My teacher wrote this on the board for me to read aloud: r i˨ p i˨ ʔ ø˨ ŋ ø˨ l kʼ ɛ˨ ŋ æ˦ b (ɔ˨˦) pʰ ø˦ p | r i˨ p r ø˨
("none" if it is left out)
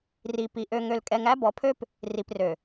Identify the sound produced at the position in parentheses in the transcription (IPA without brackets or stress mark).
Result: ɔ˨˦